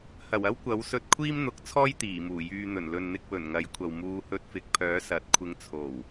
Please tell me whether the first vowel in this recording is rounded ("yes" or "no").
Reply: no